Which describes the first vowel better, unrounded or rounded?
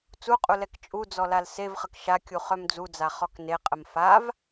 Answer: rounded